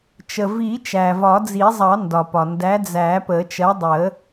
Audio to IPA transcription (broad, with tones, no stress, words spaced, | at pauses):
t͡ʃə˩vi˨˩˦ t͡ʃæ˩vɒ˨˩˦d͡zi˨˩˦zˤɑ˨˩˦ ndɒ˩pɒ˩ ndæ˨˥d͡zæ˨˩˦pə˨˩˦ t͡ʃɜ˨˥dˤə˨˩˦